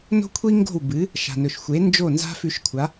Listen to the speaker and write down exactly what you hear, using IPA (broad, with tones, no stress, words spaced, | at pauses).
no̤˥kʷʰi˥ ŋɡo̤˥˩wbɨ˩˥ | ʃa̤˩nɵ˩ʃxʷe˩˥ nd͡ʒo˥˩ nza̤˥fʉ˧ʃkʷʰa˩˥